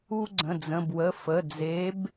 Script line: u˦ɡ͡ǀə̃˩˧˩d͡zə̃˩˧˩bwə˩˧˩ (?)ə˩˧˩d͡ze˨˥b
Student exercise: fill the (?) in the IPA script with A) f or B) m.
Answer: A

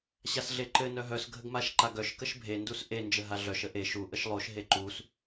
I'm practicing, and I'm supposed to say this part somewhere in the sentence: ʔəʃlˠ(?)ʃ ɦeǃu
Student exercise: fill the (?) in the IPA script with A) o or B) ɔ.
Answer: A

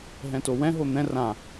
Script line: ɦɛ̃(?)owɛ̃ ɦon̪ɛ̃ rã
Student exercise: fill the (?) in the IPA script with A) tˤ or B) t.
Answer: B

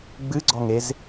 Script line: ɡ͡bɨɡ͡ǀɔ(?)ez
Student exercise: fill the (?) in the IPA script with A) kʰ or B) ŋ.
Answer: B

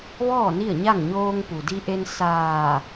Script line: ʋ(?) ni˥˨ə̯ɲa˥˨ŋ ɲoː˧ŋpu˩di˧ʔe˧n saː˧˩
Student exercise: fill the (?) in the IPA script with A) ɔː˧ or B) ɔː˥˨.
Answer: B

